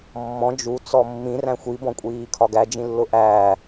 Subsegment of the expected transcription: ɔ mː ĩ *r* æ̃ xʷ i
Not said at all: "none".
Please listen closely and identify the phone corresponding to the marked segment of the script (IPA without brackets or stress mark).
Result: r